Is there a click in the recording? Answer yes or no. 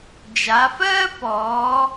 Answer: no